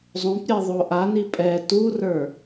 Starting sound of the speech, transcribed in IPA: zˤ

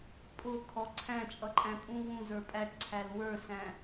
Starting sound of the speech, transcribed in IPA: pʼ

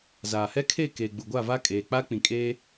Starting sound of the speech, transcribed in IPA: z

